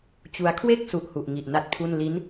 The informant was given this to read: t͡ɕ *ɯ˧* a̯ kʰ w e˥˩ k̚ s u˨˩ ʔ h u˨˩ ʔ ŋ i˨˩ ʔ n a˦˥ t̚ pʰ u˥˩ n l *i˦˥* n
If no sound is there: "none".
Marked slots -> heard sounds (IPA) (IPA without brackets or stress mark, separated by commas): u˧, i˦˥